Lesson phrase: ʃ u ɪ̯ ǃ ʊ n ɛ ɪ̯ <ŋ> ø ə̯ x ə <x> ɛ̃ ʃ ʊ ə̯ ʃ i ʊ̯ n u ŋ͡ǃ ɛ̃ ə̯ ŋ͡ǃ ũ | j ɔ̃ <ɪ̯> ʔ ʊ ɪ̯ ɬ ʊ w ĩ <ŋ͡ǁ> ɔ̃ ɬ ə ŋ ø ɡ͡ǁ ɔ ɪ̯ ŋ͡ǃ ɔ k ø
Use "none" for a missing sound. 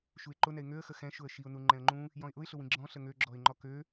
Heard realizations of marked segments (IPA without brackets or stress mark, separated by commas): ŋ, x, ɪ̯, ɡ͡ǁ